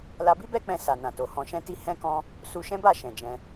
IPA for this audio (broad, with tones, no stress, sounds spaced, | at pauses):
l a˧ b i˦ b ɛ˦ k͡p ɛ̃˧ s a˨ n ã˨ t o˨ h ɔ̃˨ ʃ ɛ̃˧ t i˧ h ɛ̃˦ k ɔ̃˦ | s u˧ ʃ ɛ̃˦ b a˦˨ ʃ ɛ̃˨ d͡ʒ ɛ̃˧